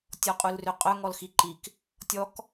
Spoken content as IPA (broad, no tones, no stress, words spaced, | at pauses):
tʲɔqʼulrøqʼœ ŋɔlxiǃik | tʲɔk